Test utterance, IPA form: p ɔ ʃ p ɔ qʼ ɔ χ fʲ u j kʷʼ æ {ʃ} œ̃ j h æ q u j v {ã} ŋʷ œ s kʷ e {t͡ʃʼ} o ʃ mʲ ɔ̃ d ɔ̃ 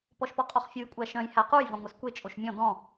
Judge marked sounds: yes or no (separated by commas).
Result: yes, no, yes